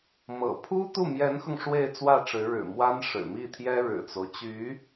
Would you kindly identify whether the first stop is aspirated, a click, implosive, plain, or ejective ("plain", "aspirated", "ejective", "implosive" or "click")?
aspirated